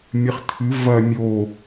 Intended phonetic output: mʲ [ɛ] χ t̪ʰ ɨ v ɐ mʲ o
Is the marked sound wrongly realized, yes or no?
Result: yes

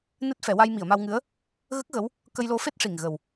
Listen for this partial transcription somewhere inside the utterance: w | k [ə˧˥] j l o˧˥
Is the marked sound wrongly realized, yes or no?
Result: yes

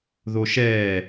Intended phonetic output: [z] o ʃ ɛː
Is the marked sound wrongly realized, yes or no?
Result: yes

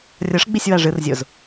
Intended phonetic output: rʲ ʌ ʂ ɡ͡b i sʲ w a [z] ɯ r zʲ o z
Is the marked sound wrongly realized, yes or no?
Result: yes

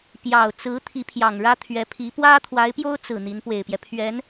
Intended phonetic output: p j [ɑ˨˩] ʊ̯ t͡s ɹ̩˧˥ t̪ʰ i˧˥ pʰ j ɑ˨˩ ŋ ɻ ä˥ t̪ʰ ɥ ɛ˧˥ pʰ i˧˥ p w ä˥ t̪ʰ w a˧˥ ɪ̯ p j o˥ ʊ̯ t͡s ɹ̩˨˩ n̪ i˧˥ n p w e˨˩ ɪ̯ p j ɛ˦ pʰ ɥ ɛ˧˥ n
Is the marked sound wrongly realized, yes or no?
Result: no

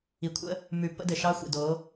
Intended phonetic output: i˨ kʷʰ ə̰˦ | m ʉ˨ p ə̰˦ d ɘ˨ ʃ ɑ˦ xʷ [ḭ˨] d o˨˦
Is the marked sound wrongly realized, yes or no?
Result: no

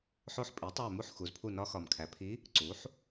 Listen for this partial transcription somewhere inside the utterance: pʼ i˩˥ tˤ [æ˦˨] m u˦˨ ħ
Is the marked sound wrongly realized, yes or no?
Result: no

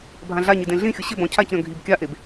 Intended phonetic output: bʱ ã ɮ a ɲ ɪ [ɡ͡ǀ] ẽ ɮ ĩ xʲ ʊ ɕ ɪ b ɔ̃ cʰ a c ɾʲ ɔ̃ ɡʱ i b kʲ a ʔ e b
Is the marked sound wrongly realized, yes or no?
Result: yes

